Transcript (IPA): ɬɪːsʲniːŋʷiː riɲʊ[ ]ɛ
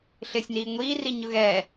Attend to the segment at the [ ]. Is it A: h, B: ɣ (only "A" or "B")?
B